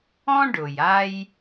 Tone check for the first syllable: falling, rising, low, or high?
high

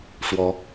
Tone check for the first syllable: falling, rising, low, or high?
rising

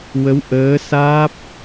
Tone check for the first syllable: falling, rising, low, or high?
rising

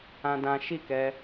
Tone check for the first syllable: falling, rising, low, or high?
high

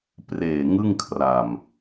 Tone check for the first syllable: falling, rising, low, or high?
low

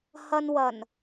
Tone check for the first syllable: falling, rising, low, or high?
low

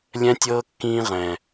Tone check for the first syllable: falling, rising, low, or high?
high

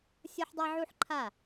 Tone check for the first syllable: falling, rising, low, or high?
high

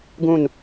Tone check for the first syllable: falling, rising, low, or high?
falling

